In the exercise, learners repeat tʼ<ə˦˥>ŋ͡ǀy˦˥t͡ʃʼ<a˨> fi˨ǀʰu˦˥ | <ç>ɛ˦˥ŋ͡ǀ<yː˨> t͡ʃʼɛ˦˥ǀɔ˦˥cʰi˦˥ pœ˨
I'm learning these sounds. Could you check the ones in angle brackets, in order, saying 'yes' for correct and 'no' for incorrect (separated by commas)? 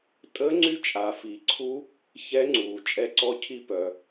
yes, yes, yes, no